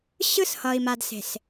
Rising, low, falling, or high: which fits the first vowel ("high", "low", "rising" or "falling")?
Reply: high